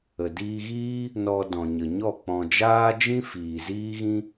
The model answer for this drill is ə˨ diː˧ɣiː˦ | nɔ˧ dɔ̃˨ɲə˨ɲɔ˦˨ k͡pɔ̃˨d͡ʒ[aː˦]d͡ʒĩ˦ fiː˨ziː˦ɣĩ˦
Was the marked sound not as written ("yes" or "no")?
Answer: no